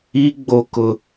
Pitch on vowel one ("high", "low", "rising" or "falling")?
high